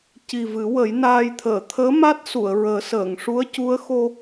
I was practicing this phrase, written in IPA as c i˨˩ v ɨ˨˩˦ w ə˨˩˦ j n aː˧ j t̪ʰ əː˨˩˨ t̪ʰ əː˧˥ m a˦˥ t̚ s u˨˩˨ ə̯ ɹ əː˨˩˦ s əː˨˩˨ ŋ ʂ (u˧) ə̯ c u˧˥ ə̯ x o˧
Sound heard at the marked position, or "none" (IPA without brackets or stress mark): u˧˥